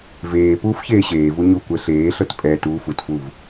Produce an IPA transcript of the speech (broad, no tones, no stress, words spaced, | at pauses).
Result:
veː puːfçeːɕeːvu ɲu kʷɛɬeːɬɤt pʼɛ tuːfutfuv